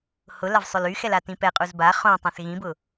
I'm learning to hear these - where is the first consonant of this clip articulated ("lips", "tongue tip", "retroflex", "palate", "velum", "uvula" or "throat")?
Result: throat